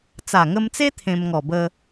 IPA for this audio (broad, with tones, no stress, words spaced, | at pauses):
t͡sa˨˩ŋə˧mt͡se˦ t̪ʰẽ˧mŋɔ˨˩bə˧